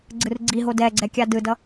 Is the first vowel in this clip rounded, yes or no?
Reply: no